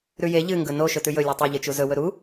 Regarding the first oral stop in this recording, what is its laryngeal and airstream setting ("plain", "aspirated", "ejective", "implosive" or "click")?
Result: plain